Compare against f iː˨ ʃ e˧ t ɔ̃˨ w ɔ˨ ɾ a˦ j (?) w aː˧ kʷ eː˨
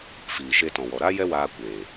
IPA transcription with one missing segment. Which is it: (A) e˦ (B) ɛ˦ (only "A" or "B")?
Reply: B